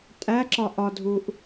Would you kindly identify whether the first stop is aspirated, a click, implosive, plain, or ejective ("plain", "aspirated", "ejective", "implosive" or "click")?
ejective